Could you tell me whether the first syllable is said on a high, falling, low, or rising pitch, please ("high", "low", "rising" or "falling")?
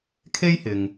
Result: high